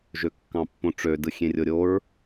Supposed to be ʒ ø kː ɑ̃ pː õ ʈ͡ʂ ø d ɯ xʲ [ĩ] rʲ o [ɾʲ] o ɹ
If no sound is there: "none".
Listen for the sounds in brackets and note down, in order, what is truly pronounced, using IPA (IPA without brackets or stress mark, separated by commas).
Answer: ẽ, ɾʲ